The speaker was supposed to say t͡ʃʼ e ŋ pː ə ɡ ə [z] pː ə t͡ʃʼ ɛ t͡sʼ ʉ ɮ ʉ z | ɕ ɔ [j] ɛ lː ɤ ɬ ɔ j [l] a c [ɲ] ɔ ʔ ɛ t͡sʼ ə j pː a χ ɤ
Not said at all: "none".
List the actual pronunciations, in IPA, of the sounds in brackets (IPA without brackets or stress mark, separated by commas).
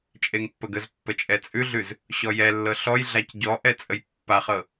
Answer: z, j, ɮ, ɟ